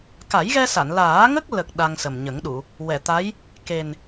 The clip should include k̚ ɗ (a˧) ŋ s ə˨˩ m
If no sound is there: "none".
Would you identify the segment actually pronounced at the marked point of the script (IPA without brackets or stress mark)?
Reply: a˧